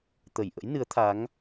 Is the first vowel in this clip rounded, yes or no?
no